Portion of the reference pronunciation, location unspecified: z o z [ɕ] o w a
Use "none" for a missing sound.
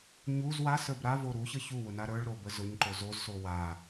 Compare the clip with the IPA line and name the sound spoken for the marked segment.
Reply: s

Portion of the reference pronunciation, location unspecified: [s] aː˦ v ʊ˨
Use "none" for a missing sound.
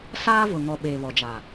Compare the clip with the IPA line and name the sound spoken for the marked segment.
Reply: s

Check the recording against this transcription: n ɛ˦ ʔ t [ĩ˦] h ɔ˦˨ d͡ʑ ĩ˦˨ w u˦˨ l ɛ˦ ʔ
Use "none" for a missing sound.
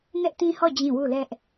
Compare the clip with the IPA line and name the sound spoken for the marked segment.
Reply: ĩ˦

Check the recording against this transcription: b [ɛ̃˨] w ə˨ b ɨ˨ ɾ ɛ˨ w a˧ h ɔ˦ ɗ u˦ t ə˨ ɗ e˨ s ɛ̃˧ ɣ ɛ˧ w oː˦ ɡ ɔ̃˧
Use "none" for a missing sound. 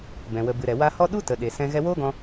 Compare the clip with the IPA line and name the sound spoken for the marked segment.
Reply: ɛ̃˨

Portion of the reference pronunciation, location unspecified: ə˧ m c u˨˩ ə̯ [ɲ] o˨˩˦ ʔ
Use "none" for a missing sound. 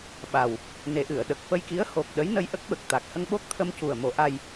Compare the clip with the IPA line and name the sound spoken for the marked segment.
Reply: m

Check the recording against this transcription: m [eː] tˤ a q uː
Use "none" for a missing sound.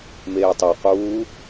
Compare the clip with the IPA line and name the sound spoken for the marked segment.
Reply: eː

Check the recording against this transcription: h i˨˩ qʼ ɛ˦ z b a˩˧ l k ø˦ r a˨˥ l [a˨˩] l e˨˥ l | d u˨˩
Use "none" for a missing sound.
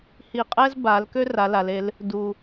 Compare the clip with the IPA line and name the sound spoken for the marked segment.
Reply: a˩˧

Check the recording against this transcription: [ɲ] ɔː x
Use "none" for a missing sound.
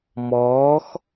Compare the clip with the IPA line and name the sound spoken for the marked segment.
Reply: m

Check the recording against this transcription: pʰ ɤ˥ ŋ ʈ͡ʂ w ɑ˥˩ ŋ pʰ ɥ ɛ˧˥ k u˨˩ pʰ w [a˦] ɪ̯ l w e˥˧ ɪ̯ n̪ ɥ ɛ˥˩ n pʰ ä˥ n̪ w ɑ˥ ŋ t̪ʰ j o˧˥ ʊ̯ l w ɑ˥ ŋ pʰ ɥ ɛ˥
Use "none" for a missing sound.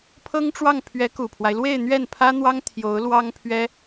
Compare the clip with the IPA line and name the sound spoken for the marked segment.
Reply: a˦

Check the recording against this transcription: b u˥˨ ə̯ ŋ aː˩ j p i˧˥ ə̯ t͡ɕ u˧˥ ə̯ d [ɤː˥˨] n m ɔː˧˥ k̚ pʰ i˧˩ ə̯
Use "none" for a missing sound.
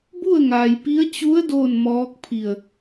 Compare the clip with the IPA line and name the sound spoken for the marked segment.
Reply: oː˥˨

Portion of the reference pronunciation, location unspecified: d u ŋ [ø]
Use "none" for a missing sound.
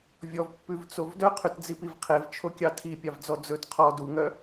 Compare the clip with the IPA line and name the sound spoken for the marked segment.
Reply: œ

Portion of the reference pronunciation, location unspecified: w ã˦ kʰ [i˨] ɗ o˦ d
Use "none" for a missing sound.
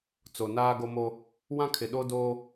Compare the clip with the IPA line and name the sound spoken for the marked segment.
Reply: ɪ˨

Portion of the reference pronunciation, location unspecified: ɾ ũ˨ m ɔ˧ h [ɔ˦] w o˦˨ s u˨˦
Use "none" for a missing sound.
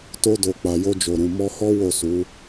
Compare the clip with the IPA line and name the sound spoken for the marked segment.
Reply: ɔ˦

